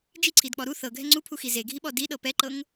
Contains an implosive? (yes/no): yes